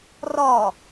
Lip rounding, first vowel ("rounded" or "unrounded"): rounded